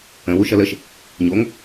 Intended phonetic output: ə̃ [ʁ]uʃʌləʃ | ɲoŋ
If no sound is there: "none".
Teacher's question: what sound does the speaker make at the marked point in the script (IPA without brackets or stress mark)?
w